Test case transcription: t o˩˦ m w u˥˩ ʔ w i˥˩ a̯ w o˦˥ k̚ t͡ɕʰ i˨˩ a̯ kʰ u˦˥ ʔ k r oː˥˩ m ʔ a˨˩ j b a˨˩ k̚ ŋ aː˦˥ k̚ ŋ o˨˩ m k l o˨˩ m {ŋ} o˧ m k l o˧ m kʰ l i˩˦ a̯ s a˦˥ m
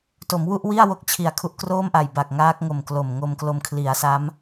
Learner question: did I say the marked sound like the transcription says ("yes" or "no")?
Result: yes